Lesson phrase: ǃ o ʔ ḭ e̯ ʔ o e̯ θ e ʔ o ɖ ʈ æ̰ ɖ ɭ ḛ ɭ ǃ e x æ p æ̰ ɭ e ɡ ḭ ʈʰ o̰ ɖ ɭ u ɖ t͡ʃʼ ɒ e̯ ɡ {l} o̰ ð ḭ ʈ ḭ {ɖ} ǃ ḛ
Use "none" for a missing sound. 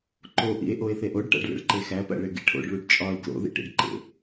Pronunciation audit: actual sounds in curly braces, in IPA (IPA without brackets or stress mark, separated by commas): l, ɖ